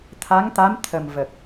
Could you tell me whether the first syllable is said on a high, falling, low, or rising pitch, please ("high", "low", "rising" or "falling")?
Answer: rising